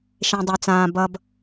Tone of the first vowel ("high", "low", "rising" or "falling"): low